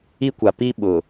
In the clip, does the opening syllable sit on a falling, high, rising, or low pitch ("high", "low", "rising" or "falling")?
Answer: high